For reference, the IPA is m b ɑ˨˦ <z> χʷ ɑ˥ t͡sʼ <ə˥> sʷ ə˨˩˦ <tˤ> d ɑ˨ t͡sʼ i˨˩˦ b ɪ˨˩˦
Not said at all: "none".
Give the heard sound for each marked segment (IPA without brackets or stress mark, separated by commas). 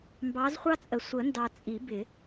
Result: z, ə˨, n